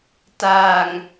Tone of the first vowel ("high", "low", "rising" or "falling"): low